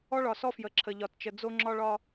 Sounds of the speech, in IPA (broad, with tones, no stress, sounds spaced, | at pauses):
ɔ˦ ɭ ɒ˨ s ɔ˦ f j ə˨ ǁʰ ə˨ ʎ ɒ˨ t t͡ʃ ə˨ d͡z o˦ ŋ͡ǁ ɒ˦ ɭ ɒ˦